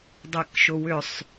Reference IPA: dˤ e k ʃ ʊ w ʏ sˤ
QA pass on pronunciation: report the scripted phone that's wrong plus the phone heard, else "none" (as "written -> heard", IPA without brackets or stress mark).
none